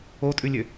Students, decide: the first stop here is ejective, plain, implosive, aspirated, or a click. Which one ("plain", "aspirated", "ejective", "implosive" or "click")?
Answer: ejective